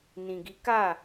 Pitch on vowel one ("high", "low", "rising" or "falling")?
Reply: low